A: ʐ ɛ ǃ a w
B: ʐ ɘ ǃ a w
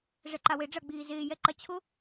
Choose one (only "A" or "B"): A